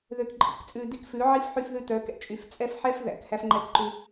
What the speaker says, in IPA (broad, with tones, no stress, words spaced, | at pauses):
ðø˨kǃʼḭ˨kt͡sʼʉ˨ di˦kfʉ˨˦ʕi˦f ħy˦fðʉ˦tœ˨˦kɛ̰˦ t͡ʃʼy˨ft͡sʼɛ˦fħɛ˦f ðæ̰˨k hæ˦fŋ͡ǃɛ˦kǃʉ˦